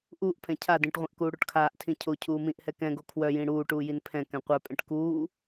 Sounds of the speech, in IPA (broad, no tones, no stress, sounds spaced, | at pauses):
ʔ uː ʔ pʰ ɛ̃ cʰ a d ĩ ʈ ʁʷ ɛ̃ ʔ k uː ɽ o ʈ kʰ aː ʔ tʰ ĩ cʰ o cʰ uː m ĩ ʔ h ɛ k ɛ̃ ɡ o kʰ w œ j ĩ ɽ uː ʈ uː j i n pʰ ɛ̃ k ɛ̃ qʷ œ pʼ ɛ̃ ʈ k uː